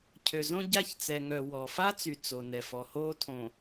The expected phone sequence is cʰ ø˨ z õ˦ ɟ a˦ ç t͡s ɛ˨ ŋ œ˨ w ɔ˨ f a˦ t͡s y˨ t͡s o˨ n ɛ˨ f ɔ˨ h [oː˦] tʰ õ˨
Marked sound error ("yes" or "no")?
no